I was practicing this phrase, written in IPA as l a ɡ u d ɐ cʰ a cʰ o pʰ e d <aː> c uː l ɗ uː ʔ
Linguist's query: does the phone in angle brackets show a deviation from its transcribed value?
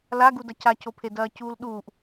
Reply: yes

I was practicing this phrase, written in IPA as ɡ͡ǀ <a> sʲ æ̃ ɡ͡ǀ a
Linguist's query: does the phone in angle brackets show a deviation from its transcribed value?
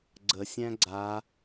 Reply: yes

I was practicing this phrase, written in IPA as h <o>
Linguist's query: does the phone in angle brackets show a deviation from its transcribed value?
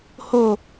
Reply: no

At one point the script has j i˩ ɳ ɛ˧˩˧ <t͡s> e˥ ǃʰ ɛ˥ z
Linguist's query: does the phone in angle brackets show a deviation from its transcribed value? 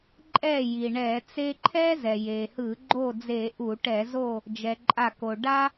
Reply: no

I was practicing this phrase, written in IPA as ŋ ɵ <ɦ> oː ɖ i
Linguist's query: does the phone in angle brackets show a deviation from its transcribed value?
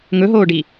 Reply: no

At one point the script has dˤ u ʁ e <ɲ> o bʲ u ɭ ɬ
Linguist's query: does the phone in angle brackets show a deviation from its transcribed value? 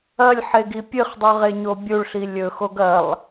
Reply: no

